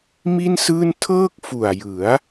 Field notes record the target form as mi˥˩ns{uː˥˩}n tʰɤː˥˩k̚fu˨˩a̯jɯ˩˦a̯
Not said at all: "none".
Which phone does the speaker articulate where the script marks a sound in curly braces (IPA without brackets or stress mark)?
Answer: ɯː˥˩